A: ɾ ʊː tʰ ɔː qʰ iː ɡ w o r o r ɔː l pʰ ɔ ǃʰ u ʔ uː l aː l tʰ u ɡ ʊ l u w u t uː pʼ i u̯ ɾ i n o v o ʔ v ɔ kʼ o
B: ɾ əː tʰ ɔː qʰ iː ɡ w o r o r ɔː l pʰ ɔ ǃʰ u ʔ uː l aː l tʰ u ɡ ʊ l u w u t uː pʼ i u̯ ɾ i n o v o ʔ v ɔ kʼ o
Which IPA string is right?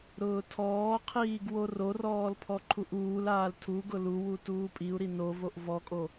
A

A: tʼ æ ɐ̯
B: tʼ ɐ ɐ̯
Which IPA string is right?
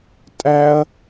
A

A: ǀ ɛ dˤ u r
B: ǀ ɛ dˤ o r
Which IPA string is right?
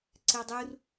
A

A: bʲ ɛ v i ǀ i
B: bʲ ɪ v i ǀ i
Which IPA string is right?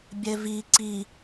A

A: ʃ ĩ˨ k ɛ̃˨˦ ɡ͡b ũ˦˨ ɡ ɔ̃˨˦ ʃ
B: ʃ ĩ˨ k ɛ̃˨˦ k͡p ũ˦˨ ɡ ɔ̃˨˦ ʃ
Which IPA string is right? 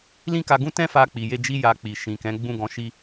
A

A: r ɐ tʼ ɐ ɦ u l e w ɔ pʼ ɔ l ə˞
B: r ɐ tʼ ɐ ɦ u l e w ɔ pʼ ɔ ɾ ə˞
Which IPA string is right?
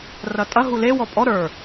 B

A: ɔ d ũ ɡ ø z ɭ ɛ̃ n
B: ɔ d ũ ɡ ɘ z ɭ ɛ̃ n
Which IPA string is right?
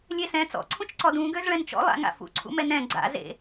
A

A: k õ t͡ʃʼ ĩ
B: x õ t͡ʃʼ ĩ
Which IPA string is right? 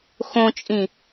B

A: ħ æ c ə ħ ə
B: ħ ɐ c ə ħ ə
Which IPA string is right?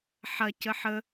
B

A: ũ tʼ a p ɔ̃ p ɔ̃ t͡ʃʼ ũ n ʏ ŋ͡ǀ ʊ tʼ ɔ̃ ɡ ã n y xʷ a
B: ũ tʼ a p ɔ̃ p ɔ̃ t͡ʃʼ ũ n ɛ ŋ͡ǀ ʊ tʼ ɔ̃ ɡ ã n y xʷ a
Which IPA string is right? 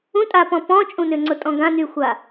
A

